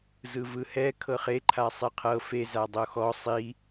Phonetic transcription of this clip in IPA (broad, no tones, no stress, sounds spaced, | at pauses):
z ɯ v ɯ h ɛ kʰ ɤ χ e ǃʰ a sˤ i qʰ ɤ f e z a dˤ o x ɔ sˤ i